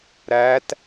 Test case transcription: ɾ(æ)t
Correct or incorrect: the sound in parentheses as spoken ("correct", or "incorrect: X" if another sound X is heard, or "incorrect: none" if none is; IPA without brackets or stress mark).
correct